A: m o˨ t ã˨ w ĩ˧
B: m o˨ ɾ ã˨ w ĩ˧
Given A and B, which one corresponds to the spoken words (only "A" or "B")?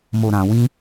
B